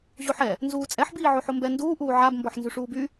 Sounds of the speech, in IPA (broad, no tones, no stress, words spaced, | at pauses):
ʑoħɛ | nzuːt͡sʼɛħ biːʕoħombɛ nduː ʔuːʕab mbɔħnzyʂuːby